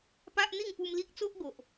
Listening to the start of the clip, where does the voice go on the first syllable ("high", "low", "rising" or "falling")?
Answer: high